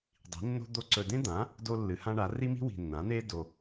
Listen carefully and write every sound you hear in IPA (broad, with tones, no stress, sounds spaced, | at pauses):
dˤ i̤˩˥ nː o̤˥ d̪ o˥ ǀ ɵ˨ d ẽ˥ d̪ ã˩˥ | d o˥ lː ɨ˩˥ h ã˥ ɳ a˩˥ r i˥ m i̤˥ w i̤˨ nː ã˩˥ n̪ e˥ d o˨